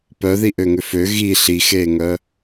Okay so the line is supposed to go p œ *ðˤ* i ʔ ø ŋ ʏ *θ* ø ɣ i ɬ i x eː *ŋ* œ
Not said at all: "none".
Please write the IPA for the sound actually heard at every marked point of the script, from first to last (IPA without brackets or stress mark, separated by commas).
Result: ð, f, ŋ